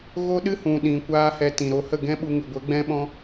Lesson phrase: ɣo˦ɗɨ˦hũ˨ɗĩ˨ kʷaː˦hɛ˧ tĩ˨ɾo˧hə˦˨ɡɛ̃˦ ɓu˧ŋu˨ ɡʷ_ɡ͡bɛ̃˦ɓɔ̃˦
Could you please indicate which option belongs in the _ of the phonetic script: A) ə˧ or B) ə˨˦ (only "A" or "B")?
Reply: B